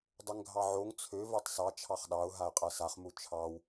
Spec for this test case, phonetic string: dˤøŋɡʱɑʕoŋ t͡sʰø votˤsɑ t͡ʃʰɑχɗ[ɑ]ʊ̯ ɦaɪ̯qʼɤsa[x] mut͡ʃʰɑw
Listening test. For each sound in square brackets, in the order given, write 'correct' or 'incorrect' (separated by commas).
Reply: correct, incorrect